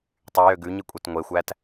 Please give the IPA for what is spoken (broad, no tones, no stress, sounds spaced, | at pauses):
tˤ y j ø ɡ ʉ ɲ i kʷʼ ɛ t ŋʷ e xʷ æ t